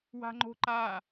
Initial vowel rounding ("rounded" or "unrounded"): unrounded